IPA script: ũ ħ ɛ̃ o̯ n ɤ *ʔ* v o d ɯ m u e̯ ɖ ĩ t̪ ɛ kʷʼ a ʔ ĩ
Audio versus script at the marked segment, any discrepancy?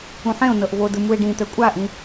no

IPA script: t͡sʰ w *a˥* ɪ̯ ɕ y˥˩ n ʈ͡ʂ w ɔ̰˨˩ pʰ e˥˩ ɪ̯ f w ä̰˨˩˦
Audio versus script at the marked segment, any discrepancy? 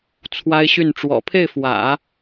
no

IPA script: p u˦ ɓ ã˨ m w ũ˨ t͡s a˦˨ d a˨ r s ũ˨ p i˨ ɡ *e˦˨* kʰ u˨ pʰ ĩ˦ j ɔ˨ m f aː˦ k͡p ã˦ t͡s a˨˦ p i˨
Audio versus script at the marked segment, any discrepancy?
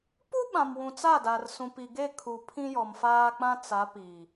no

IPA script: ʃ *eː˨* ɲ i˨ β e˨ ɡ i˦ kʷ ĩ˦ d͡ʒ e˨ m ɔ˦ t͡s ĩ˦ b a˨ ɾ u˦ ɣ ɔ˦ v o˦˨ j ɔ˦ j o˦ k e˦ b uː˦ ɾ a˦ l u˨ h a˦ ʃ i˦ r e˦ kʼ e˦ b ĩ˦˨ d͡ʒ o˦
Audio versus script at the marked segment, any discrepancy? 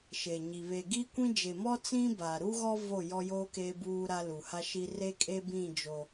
yes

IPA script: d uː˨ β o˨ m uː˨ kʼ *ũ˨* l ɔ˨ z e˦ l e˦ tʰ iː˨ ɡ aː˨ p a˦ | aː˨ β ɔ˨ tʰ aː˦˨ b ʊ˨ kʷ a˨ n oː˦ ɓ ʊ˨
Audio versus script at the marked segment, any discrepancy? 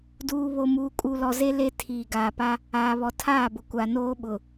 yes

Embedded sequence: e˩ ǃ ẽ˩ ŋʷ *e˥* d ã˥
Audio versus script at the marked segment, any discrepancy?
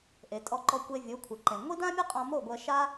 yes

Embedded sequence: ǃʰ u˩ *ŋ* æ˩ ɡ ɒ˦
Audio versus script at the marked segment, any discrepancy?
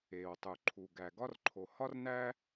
yes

